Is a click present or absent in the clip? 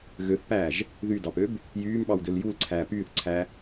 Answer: present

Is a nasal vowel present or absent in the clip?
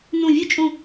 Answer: present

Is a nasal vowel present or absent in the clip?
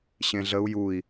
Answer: present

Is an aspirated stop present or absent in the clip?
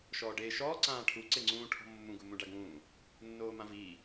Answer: present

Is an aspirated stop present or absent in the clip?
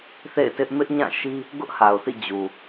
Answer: absent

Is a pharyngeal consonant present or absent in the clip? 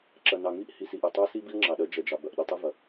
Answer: absent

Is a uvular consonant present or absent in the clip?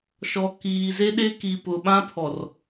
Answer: absent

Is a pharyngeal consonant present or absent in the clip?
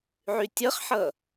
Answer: present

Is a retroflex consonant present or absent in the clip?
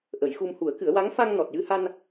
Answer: absent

